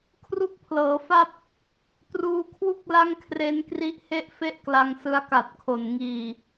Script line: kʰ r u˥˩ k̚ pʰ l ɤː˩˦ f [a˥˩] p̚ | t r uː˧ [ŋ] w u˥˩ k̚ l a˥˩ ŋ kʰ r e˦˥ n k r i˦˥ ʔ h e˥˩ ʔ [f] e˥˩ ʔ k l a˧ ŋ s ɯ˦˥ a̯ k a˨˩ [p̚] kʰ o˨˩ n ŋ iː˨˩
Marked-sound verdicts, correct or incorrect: correct, incorrect: kʰ, correct, incorrect: t̚

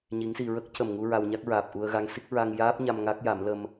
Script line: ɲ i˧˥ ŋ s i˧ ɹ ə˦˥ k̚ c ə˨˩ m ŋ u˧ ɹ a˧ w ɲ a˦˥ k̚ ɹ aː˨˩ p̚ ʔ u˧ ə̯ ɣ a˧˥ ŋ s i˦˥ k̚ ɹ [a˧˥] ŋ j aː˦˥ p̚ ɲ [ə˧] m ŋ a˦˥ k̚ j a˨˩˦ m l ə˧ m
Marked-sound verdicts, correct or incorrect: incorrect: a˧, incorrect: a˧

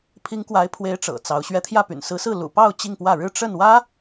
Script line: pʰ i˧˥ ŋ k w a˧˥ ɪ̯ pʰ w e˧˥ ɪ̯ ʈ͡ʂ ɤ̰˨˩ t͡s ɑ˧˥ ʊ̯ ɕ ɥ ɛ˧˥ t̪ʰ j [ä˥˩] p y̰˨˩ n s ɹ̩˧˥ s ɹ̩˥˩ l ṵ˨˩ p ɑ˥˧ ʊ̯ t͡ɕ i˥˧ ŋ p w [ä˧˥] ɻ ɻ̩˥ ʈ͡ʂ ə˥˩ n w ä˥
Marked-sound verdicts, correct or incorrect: correct, incorrect: ä˥˩

